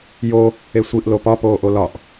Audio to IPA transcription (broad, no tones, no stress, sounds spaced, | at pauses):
j o | e sʷ i ʔ l o p ɒ p oː ʔ o l ɒ ʔ